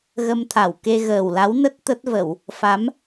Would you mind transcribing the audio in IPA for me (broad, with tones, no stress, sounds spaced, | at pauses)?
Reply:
ɣ ə˧ m t̪ʰ a˧˩ w k e˧ ɣ əː˨˩ w l a˨˦ w n ə˦˥ t̚ t̪ ə˦˥ t̚ v ə˧˩˨ w | f a˨˦ m